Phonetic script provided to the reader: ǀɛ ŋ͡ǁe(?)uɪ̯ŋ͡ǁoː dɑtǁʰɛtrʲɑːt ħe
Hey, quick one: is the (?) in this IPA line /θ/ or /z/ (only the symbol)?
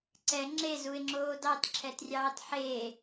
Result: z